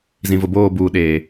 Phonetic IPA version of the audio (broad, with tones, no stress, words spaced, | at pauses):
zĩ˨vʊ˨boː˦˨buː˨ ɗeː˨